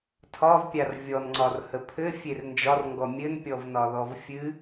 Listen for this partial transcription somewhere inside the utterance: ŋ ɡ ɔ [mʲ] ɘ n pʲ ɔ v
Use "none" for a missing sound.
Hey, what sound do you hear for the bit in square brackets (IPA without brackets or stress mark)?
mʲ